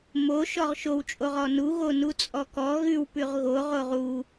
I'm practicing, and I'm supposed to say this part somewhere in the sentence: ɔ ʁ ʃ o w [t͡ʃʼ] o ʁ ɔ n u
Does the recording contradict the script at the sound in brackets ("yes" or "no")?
no